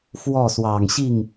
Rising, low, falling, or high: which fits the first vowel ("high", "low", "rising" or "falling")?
falling